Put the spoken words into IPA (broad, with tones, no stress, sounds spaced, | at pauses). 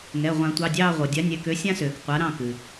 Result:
ŋ ɛ˩˧˩ ʁʷ ã˨˩˦ tʷ ɑ˩˧˩ dʲ ɑː˦˨ ʁʷ ɤ˩ dʲ a˨˥ nʲ ɛ˩˧˩ k ø˨˥ sʲ ã˦ s øː˩ k qʷ a˨˥ ɾ ɑ̃˦˨ k ɨ˩